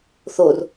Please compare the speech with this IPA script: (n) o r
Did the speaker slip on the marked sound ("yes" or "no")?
yes